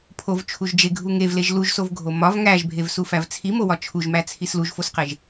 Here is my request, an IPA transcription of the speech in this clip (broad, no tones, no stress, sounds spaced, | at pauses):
pʰ o v t͡ʃʰ u ʒ d͡ʒ e ɡʱ u ŋ e v l e ʒ l u ʒ s o v ɡʱ o m ɒ v ŋ æ ʒ bʱ e v s u f æ v t͡sʰ i m o w ɒ t͡ʃʰ u ʒ m æ t͡sʰ i s l u ʒ f o s q e ʒ